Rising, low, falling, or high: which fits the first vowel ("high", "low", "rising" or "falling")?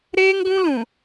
high